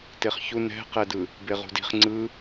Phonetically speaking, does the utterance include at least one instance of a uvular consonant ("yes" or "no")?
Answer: yes